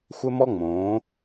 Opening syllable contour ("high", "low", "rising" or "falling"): high